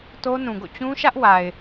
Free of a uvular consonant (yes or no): yes